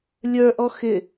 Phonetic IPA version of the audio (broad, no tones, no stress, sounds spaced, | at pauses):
lʲ ə˞ ʔ ɔ x ɪ